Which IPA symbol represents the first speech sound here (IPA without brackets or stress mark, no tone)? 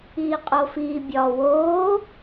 iː